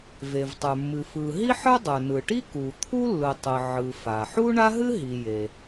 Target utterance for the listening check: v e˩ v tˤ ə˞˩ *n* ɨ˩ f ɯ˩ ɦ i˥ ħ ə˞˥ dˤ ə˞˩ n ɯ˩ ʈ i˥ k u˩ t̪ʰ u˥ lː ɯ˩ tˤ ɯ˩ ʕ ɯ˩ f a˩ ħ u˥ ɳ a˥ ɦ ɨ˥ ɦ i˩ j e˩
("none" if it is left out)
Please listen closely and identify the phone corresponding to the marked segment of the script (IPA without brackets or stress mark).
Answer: mː